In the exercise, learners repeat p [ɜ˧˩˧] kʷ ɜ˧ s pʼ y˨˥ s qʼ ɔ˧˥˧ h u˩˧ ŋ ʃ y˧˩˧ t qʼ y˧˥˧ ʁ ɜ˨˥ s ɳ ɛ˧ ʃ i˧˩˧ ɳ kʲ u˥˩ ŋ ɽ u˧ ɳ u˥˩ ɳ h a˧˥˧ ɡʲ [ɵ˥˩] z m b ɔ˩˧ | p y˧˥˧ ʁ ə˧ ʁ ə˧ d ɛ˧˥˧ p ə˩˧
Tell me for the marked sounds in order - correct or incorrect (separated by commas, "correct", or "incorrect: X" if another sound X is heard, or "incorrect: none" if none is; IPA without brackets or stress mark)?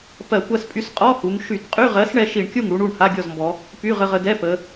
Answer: correct, incorrect: ɔ˥˩